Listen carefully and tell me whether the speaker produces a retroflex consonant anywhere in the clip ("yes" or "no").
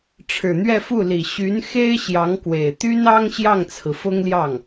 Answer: yes